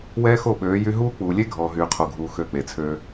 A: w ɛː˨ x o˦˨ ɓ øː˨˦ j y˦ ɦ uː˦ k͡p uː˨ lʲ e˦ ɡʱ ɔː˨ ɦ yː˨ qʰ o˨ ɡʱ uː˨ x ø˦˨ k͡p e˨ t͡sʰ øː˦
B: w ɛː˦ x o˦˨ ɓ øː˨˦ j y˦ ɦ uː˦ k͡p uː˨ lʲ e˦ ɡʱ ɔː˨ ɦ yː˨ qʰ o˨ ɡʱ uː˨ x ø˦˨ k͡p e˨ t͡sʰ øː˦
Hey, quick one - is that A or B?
B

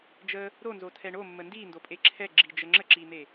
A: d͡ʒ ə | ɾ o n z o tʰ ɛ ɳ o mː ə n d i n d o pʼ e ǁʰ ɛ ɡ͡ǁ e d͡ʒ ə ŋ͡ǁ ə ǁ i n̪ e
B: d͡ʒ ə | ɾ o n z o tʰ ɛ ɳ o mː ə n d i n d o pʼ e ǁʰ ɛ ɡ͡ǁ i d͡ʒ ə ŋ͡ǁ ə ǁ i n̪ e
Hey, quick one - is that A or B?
B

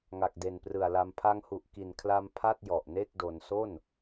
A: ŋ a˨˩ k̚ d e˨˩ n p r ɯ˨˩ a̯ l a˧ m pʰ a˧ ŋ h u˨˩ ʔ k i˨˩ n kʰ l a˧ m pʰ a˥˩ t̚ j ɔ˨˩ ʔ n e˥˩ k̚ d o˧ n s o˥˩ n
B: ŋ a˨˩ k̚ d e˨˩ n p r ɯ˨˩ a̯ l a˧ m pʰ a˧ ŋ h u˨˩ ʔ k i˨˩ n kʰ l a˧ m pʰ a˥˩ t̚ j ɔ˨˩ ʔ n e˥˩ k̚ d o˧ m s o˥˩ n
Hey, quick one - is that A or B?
A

